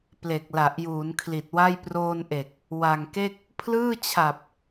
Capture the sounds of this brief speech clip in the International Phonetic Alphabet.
p l e˨˩ k̚ l a˨˩ ʔ j uː˩˦ n kʰ l i˨˩ t̚ w a˥˩ j p r oː˧ n ʔ e˨˩ k̚ | w a˨˩ ŋ k e˥˩ k̚ | pʰ l ɯː˥˩ t͡ɕʰ a˨˩ p̚

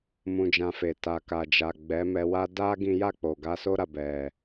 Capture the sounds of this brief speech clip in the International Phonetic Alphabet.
m ũ˧ d͡ʒ ã˧ f e˨ t a˨ k a˨ d͡ʒ a˨ ɡ͡b ɛ˨˦ m ɛ˧ w a˦ d a˦ ɡ ĩ˦ j a˦˨ k͡p o˨ ɡ a˧ s o˦ ɾ a˦˨ b ɛ˨

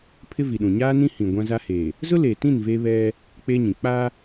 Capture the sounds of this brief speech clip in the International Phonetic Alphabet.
pʰ ɪ˦ v i˨ ɗ ũ˨ ɲ aː˦ n ĩ˦ h ĩ˨ ɡʷ ã˦ z a˦ h e˨ | z ʊ˦ l eː˨ t ĩ˦˨ n v e˦ β ɛ˦ | k͡p e˦ ɲ ĩ˨ k͡p a˦

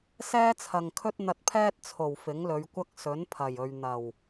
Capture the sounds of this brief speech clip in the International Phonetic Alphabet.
s ɛː˥ t͡sʰ ɐ˨ ŋ kʰ ɵ˥ t̚ n̪ ɐ˧ t̚ pʰ ɛː˥ t̚ t͡sʰ o˨˩ w f ɪ˨˥ ŋ l ɵ˨˧ ɥ kʷ ɐ˥ k̚ s ɵ˨˥ n pʰ ɐ˨˩ j ɵ˨ ɥ n̪ ɐ˨˩ w

